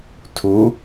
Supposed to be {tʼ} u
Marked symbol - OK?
no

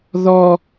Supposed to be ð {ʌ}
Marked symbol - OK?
no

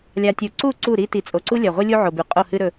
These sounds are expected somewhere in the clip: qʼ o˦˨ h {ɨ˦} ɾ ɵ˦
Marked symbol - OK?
yes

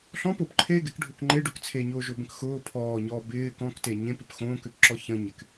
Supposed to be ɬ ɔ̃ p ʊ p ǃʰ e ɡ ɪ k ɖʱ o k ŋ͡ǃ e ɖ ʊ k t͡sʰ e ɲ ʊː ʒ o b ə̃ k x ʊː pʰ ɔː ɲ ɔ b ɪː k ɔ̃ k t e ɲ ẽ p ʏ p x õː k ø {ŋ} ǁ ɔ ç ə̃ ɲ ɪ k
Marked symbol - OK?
no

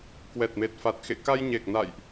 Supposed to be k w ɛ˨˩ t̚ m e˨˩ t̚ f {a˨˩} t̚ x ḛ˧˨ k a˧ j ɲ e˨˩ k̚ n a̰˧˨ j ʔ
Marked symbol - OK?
yes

